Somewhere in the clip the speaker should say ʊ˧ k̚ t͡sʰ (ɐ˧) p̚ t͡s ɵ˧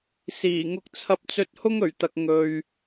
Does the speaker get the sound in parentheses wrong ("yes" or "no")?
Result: no